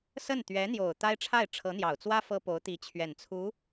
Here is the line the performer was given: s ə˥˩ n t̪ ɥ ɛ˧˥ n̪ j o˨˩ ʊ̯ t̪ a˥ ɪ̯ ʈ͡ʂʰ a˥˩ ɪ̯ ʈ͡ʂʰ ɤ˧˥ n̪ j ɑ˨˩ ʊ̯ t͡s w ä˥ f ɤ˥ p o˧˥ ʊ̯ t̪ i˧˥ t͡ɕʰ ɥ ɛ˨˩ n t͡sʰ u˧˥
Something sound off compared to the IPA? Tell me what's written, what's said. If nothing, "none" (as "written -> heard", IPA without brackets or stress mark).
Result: none